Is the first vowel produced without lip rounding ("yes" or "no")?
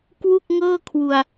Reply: no